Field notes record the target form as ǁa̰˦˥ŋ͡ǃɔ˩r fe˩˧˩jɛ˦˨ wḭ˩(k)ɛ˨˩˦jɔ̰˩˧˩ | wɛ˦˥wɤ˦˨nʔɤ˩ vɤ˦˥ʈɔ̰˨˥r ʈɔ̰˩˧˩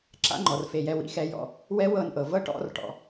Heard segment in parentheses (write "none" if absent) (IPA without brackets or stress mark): x